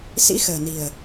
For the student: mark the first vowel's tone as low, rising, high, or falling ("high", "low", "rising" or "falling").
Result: rising